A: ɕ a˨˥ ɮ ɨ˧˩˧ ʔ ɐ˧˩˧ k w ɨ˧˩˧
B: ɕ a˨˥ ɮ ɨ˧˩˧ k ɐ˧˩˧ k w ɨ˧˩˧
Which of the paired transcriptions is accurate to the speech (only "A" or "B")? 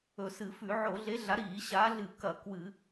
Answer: B